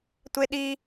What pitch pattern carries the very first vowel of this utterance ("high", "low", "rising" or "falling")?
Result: high